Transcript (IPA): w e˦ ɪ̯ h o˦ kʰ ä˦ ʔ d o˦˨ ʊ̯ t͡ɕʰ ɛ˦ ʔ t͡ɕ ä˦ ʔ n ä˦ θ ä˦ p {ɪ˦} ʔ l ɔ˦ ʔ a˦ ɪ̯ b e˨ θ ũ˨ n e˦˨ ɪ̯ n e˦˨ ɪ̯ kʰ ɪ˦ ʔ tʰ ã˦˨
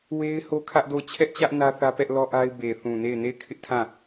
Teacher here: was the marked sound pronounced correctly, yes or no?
no